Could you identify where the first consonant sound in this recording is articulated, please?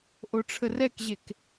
glottal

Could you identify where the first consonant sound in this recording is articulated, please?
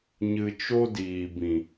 palatal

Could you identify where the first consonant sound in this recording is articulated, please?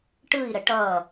retroflex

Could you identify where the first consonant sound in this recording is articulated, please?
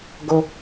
velar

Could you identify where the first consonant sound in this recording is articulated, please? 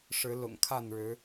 retroflex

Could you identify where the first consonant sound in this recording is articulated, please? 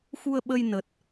velar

